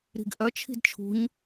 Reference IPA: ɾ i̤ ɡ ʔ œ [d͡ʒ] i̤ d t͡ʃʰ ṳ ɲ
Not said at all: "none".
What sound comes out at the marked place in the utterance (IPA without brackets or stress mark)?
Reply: t͡ʃʰ